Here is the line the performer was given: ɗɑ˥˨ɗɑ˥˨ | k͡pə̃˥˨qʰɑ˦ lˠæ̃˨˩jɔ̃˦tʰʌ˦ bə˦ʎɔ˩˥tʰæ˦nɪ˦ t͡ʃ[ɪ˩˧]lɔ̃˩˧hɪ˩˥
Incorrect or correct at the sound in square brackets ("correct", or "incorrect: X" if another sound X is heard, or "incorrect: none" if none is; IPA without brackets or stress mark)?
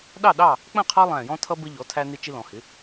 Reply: incorrect: ɪ˦